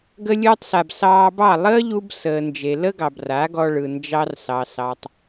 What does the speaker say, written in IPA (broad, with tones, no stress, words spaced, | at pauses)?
ɡə˧ lʲɯː˧tˤsa˨b sɑː˧bɑ˦˨ lˠəː˦ʎu˧b səː˨nd͡ʒe˨lə˦ɡɑ˨b ra˨˦ɡɔ˧ɭɯ˨ nd͡ʒɑ˧rsɑ˨sɑ˨tˤ